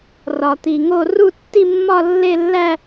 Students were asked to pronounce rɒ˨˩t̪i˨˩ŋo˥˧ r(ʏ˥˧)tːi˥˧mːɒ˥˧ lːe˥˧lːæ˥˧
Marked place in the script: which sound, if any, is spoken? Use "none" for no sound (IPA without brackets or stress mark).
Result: u˥˧